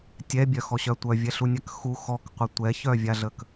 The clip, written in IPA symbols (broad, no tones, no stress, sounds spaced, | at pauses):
tʲ ɛ bʲ œ x ɔ ɕ œ tʷ œ vʲ ɛ ɬ u nʲ a k x u x ɔ k qʷ ə tʷ ɛ ç œ vʲ a ɮ ə k